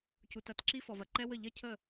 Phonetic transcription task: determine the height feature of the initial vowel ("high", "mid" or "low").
high